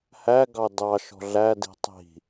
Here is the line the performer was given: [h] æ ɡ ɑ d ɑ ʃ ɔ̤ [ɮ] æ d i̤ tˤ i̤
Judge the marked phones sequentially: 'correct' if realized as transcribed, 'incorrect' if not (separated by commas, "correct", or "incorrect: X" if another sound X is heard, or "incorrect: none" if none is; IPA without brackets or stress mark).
correct, correct